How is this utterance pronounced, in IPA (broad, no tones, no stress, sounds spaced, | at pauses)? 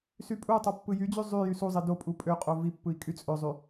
s y pʼ u tˤ o pː ɯ j y d͡ʑ y zˤ y j y s u zˤ i d o pʼ u pʼ ø qʼ o v i pː ɯ i̯ kʼ y t͡sʼ ø zˤ y